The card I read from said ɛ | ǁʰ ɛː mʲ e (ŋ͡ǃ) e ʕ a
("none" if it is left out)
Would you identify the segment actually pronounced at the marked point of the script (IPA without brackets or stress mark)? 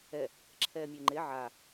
ŋ͡ǃ